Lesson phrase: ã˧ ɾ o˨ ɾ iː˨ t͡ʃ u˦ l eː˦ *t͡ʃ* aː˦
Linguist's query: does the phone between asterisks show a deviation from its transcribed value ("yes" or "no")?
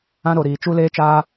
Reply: no